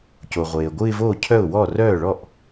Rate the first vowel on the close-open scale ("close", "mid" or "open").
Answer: mid